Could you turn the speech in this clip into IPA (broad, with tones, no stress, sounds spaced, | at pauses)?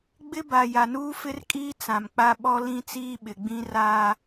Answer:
ɡ͡b ɪ˦ b a˨ j a˨ n uː˦ f ɪ˦ r kʼ iː˦ t͡s ã˨ m k͡p a˦ ɓ ɔ˦ l ĩ˦ t͡s iː˦ ɓ ɪ˨ ɡ͡b ĩ˦ r aː˦